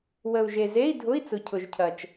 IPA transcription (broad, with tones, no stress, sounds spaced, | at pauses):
w ə˨ u̯ ʒ e˨ z e˧˥˧ i̯ dʱ ʊ˧˥˧ i̯ t͡s ʊ˨ cʰ ʊ˨ ʒ cʰ ɐ˨ t͡ʃ